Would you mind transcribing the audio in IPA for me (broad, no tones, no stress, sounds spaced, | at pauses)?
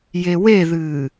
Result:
j e w e ð ɨː